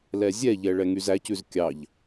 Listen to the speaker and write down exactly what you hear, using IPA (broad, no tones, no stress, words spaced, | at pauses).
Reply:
lɛzʲɛʎɛ ɭɛŋyzæcʉz kʲɑʎ